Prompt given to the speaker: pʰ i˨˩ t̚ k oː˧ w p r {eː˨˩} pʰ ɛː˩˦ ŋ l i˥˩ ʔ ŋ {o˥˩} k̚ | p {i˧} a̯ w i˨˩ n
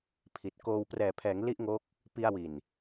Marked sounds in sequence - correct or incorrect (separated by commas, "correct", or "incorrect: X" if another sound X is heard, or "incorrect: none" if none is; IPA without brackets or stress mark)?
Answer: incorrect: ɛː˨˩, incorrect: o˦˥, correct